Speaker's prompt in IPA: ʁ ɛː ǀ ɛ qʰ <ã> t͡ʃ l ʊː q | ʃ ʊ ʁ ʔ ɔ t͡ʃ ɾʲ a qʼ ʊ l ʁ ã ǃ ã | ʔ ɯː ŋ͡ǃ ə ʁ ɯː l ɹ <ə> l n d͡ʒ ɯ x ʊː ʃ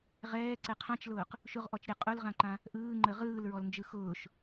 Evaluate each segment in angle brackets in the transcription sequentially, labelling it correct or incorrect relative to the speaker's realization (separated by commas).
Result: correct, incorrect